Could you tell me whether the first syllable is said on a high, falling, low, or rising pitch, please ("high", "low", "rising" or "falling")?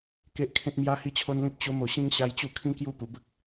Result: high